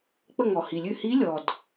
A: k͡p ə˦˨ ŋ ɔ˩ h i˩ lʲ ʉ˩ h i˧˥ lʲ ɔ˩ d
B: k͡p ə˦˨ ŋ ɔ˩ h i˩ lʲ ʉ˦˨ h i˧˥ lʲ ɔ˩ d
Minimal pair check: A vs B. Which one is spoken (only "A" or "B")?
B